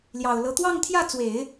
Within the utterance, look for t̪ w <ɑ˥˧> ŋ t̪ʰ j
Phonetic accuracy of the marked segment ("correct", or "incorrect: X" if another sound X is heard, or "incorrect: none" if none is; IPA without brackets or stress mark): correct